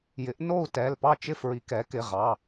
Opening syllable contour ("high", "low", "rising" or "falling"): rising